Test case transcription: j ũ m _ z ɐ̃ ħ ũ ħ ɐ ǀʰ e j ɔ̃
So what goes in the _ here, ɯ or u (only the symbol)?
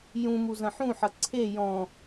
u